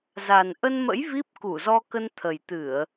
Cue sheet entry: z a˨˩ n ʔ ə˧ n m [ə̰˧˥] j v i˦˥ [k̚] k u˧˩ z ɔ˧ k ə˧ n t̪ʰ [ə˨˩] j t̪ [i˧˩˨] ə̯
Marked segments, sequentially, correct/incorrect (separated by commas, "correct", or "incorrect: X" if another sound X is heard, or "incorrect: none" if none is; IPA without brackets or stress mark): correct, incorrect: p̚, correct, incorrect: ɨ˧˩˨